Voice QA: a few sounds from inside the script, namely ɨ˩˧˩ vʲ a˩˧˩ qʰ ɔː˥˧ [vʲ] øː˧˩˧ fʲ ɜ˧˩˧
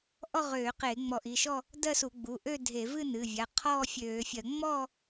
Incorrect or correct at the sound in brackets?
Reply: incorrect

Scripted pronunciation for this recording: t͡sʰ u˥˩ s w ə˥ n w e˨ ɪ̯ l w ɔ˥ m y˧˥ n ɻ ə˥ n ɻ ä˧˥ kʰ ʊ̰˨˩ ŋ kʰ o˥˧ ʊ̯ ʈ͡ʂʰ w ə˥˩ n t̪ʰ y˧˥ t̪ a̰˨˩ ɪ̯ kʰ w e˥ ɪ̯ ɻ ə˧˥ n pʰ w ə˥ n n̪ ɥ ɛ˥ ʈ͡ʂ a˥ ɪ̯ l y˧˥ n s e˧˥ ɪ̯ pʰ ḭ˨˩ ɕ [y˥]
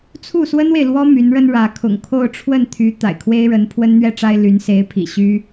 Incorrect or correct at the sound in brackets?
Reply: correct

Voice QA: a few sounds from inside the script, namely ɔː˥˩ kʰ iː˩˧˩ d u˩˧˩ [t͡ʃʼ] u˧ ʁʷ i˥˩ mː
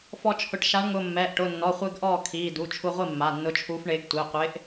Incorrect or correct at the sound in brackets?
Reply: incorrect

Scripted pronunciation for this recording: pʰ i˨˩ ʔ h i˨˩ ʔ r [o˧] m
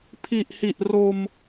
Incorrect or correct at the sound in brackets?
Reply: correct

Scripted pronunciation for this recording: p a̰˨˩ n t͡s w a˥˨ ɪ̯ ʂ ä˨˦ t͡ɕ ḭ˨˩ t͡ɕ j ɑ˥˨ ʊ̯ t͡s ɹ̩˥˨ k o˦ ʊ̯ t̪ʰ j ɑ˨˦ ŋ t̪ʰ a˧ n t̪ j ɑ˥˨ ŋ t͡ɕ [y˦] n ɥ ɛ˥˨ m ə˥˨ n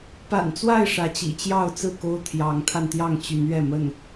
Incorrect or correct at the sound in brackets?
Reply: incorrect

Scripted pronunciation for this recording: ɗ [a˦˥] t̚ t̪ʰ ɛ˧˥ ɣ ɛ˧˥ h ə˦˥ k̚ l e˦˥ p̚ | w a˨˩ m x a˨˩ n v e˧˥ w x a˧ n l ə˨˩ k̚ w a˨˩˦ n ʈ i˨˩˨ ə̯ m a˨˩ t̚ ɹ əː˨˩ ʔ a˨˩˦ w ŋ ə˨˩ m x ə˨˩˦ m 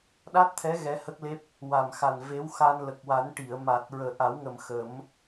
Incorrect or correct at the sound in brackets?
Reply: correct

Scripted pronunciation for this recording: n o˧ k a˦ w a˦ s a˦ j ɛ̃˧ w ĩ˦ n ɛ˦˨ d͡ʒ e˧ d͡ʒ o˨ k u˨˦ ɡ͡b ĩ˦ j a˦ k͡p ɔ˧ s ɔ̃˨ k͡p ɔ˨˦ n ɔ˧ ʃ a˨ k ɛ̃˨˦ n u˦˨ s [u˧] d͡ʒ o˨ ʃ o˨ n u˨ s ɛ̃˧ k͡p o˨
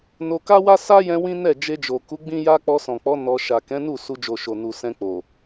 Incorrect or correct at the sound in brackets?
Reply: correct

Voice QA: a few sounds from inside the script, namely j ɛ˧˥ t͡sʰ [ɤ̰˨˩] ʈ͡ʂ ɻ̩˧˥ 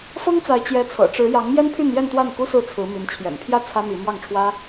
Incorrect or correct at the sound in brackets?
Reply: correct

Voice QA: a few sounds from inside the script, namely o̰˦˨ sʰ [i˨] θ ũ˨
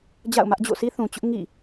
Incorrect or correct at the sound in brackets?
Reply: incorrect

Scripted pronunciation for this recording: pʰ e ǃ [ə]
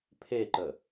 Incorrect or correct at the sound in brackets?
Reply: correct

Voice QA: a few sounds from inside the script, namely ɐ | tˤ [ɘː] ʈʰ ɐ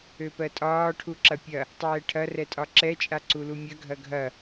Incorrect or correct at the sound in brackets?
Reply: incorrect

